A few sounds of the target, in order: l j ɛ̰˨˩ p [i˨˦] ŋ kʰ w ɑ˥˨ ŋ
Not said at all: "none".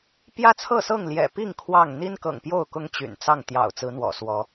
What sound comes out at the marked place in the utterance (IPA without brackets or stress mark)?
i˥˨